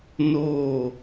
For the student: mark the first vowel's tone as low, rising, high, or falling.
falling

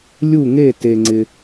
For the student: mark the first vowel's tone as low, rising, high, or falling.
falling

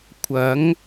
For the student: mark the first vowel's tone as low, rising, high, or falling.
rising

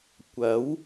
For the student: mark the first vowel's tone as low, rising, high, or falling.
rising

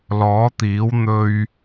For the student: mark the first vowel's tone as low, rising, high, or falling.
rising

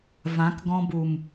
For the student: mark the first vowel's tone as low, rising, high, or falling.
rising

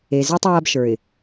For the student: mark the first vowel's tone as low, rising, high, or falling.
low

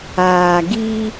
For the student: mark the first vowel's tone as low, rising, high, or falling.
low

